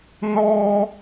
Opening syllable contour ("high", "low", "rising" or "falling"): high